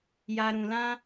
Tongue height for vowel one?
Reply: low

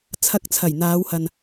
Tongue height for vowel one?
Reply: low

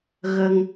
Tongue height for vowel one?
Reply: mid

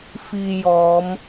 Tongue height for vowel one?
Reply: high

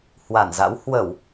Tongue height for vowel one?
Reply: low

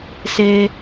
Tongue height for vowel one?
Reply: mid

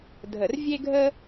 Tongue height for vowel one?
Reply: mid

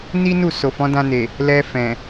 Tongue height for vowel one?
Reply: high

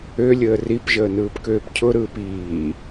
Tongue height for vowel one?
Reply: mid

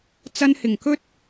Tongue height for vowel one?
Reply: low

